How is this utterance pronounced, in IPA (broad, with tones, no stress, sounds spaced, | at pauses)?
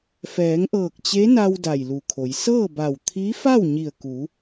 f ɛː˩˧ ŋ ʔ ɤː˧˩ k̚ t͡ɕ e˧˥ n a˧ w d a˧˩ j l u˧˩ kʰ o˩˧ j s ɤː˥˨ b a˧˩ w t̪ʰ i˧˥ f a˥˨ w ɲ i˧˩ ə̯ k u˩˧